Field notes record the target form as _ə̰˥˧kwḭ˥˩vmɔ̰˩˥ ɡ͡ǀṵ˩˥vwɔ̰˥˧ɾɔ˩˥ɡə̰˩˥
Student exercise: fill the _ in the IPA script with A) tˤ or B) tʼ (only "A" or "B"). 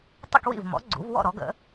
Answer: A